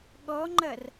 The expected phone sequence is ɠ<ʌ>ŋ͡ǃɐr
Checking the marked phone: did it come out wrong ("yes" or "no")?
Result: yes